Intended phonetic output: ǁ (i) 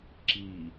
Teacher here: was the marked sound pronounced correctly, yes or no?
yes